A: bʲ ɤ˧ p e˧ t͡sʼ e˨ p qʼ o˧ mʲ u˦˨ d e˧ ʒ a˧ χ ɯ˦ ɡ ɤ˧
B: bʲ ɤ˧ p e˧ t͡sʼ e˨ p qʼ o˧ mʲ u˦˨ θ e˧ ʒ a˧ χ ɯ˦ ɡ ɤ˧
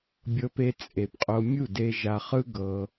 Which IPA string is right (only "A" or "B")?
A